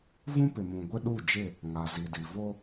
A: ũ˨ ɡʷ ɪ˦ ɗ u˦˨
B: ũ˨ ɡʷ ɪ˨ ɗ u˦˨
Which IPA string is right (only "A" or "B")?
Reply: A